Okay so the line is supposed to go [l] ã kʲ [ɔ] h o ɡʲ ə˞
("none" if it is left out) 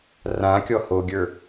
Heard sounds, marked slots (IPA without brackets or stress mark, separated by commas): r, ɔ